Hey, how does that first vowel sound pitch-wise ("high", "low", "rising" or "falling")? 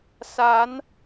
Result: rising